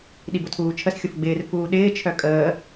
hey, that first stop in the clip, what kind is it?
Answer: implosive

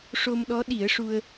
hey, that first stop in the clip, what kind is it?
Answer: implosive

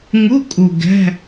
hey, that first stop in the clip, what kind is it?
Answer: ejective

